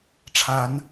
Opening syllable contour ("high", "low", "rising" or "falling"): rising